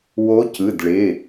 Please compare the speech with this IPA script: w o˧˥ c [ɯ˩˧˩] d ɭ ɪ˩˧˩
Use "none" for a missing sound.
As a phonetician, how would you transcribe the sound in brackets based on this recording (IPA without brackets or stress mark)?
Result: ɯ˩˧˩